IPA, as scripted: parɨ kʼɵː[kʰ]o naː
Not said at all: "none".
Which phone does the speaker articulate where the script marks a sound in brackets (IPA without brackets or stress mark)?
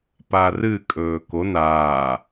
k